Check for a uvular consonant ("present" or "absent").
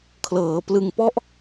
absent